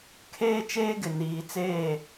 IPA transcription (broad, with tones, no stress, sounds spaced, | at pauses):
kʰ eː˦ t͡ʃ eː˦ ɡ ɪ˨ n iː˨ t͡s eː˦˨